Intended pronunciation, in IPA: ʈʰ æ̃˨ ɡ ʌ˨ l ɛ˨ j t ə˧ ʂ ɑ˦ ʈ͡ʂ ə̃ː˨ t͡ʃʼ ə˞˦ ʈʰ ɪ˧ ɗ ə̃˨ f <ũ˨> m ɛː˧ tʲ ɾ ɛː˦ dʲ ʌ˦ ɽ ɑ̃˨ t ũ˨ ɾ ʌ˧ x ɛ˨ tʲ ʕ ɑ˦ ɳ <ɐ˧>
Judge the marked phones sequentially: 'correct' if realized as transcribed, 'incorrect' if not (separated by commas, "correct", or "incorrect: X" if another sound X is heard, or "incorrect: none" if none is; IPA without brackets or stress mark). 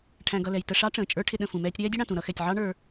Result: correct, incorrect: ə˞˧